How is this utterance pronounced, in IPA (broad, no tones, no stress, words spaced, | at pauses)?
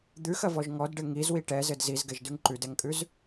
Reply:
d̪ʉxɐvɔʒ ŋɔdɖɘ ŋizwi ʈɛzɘd zizɡɛʒdʉŋ ǃʉdɛŋkʼʉz